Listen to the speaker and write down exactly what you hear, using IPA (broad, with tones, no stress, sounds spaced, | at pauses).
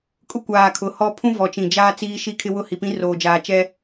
kʼ ʊ˦ kʷ aː˨ kʰ ʊ˨˦ h ɔ˦ pʰ ũ˦ v ɔ˨ t͡ʃ ĩ˨ d͡ʒ aː˦ t͡s iː˦ ʃ i˦ kʰ ɪ˦ w ʊ˦˨ h i˨ p ĩ˦ r oː˨ d͡ʒ aː˨ t͡ʃ ɛ˦